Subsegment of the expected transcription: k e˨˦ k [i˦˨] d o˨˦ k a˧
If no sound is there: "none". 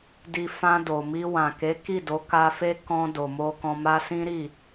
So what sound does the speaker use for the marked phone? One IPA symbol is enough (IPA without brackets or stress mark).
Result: i˦˨